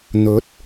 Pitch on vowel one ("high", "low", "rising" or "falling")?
rising